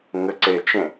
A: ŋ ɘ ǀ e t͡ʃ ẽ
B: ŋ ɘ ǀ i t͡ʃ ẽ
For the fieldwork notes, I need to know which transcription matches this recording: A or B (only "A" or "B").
A